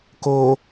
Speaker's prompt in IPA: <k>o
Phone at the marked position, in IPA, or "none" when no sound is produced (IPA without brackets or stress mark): k